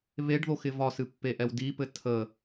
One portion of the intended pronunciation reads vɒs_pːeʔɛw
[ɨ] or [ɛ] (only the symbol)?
ɨ